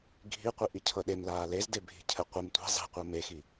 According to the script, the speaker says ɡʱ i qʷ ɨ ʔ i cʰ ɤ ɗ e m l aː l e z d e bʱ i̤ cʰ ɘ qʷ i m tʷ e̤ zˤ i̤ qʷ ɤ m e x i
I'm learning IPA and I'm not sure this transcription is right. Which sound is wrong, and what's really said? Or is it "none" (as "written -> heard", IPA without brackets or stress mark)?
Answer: ɨ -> i